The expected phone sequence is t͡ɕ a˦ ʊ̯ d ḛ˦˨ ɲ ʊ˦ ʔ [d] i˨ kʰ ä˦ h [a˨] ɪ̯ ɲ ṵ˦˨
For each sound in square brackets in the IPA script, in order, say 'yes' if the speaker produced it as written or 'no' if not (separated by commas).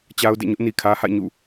no, no